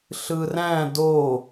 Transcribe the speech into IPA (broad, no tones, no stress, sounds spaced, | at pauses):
ɬ ɯ r æ̃ d o